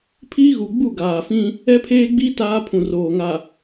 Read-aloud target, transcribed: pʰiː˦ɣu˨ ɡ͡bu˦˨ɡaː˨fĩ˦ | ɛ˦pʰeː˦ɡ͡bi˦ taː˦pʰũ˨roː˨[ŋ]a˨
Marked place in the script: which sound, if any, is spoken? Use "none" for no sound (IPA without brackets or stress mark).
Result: ŋ